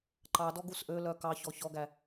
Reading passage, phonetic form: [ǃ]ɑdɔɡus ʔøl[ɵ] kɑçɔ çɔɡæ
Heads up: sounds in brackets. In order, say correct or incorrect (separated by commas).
correct, incorrect